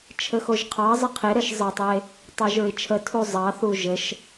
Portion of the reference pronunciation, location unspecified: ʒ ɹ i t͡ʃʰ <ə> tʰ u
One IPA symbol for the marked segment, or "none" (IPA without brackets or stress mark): ə